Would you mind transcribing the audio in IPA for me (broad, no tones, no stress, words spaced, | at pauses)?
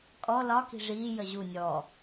kʼɔ lɒki̤ ʐiːjə ʑu nʲɔ